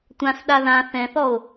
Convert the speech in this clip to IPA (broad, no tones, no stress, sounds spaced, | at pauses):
tʷ ã s ɗ a ð ã θ ɛ̃ θ ɔ o̯